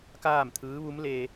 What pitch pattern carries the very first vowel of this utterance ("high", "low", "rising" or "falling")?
falling